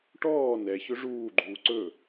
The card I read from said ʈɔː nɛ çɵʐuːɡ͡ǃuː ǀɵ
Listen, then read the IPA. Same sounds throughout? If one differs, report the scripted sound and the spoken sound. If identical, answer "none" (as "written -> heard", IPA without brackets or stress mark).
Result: none